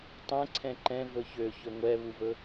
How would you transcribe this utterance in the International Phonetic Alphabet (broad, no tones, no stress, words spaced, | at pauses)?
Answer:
tˤɛ̃ǀʰɛ̃ ǃɛ̃ vɵçø çɵŋʷɛβuvɵ